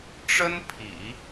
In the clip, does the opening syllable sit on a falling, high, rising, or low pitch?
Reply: high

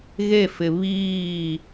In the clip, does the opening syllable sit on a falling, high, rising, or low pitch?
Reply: falling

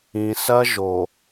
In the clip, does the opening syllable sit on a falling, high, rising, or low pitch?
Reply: low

